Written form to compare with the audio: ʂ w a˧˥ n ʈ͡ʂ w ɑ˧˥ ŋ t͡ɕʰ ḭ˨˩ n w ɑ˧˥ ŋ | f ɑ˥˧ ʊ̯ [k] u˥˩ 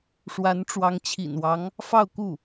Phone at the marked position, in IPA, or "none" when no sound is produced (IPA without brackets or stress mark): k